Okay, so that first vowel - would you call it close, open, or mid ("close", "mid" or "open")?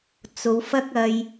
mid